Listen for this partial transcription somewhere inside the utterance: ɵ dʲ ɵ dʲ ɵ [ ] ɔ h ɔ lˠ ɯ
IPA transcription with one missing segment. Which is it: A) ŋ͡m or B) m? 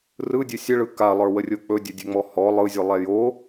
A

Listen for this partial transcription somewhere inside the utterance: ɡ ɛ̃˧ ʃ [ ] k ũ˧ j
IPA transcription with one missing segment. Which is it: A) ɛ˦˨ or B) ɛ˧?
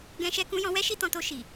B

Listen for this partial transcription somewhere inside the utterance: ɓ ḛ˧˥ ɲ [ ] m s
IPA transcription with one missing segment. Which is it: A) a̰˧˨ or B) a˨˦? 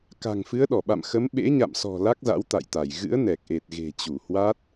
A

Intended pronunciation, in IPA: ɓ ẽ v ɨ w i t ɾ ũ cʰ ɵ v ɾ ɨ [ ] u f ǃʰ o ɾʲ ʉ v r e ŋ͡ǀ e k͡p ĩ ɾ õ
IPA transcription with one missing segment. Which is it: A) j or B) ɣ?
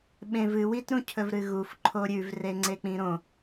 B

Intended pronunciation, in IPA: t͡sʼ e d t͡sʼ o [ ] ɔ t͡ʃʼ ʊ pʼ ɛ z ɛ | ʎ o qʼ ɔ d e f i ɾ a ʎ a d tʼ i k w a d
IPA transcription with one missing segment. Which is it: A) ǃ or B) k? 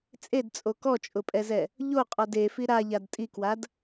B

